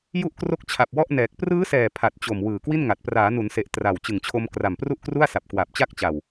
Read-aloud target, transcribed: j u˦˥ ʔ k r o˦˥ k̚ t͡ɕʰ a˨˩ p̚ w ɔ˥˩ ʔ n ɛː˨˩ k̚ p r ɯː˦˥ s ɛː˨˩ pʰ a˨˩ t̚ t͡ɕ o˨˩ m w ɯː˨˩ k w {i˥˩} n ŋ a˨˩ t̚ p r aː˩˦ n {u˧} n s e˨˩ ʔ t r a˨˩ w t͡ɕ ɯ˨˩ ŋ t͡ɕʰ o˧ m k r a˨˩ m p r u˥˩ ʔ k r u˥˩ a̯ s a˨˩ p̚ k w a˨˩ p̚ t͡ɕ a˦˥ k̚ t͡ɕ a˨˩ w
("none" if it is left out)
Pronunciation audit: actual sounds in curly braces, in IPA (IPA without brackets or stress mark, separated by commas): i˥˩, u˩˦